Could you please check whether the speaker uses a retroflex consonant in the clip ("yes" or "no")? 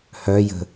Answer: no